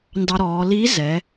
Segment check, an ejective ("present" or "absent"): absent